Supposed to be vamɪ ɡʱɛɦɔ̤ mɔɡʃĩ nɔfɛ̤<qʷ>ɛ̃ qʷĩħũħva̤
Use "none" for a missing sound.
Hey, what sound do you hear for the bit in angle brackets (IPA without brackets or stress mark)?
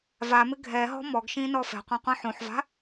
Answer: qʷ